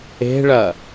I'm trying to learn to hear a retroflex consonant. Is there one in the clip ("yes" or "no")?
yes